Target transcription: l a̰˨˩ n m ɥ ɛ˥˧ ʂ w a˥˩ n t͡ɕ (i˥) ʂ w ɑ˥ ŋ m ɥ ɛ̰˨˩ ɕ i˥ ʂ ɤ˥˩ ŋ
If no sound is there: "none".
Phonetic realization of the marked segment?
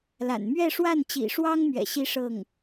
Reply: ḭ˨˩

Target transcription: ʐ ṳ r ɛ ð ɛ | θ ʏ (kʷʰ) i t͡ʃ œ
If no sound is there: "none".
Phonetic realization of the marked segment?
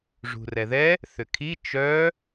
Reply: kʰ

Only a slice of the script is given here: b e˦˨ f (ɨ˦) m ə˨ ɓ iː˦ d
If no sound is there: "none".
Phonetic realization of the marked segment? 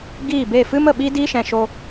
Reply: ɨ˦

